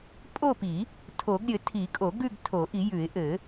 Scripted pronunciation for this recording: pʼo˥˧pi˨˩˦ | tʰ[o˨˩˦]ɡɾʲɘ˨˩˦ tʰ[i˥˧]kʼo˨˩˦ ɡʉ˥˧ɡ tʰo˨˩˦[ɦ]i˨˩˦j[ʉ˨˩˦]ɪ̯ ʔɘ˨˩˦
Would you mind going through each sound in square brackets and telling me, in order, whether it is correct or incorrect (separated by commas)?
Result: correct, incorrect, incorrect, correct